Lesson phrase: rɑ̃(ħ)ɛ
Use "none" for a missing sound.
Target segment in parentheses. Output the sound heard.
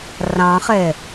χ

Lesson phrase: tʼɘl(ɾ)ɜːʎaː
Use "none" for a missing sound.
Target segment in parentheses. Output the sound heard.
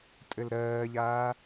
ɾ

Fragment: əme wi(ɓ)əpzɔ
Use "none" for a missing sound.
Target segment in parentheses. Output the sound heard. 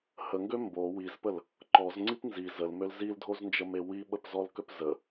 ɓ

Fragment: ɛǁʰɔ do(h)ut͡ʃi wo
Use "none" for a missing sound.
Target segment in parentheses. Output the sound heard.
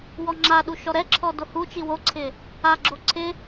h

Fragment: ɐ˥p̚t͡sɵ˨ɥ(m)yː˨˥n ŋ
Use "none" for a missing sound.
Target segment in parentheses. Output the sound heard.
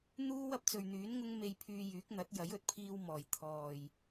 n̪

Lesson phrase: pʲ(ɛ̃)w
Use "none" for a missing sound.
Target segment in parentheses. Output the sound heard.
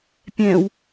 ɛ̃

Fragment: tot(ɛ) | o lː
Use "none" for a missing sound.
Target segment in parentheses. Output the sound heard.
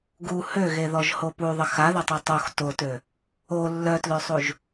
ø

